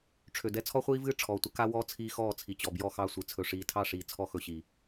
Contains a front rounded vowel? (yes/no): yes